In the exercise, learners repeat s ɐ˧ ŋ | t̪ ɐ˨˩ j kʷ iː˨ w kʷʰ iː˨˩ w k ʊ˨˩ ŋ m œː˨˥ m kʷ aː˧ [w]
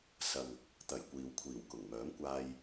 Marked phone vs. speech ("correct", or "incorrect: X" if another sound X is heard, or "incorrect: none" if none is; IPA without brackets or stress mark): incorrect: j